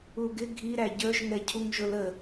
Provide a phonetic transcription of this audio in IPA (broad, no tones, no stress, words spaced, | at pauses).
uɡɪ ɡʱi ɾæɟə˞ʒ ŋɛcʰuŋʒʊlə